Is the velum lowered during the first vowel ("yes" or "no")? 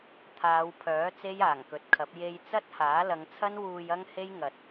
no